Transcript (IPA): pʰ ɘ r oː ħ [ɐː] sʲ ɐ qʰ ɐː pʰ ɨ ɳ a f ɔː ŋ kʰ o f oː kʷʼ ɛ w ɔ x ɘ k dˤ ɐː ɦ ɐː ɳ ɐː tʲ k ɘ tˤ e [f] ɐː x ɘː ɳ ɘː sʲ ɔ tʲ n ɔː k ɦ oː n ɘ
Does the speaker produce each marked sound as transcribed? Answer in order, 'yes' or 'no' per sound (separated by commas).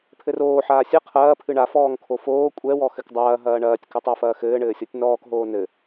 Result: no, yes